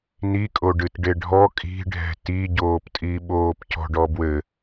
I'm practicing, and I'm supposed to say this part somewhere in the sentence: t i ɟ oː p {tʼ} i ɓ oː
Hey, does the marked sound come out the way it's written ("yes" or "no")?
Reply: yes